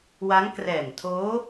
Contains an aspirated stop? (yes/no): yes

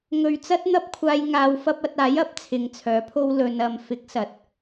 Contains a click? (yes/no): no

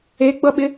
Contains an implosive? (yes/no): yes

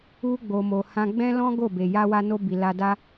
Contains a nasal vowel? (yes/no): yes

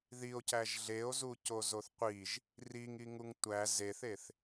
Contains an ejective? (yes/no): no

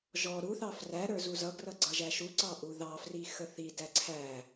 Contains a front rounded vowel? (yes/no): no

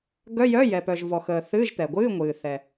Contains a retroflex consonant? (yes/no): no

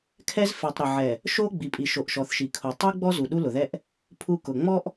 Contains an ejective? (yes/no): yes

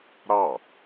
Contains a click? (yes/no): no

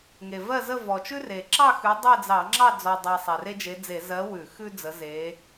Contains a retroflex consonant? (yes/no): no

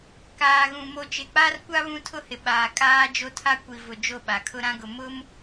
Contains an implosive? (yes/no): yes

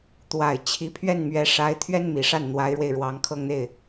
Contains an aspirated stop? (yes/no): yes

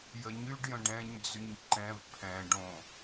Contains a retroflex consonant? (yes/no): yes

